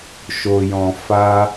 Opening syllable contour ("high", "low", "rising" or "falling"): low